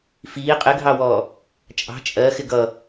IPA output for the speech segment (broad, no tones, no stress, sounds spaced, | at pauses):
f iː qʼ ɪ ɡʱ ɑ w ɔː | t͡ʃʼ ɑ̤ t͡ʃʼ ɜ x ɪ ɡ ʌ